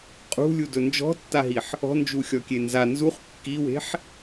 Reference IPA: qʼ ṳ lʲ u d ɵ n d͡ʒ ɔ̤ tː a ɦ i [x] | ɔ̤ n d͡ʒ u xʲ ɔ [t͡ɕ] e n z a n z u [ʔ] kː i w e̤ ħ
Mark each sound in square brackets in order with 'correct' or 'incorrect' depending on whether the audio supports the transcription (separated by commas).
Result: incorrect, incorrect, incorrect